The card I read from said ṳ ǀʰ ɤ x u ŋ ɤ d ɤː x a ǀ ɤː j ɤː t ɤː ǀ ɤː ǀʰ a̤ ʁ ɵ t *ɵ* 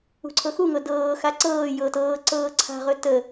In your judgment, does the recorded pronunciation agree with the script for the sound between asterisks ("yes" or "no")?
no